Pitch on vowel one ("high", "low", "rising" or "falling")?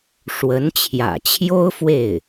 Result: rising